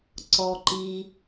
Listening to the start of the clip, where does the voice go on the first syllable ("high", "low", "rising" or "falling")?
low